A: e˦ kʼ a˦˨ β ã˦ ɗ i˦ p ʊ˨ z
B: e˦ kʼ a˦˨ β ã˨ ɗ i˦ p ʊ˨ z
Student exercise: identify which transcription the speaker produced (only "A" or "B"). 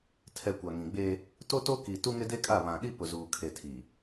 B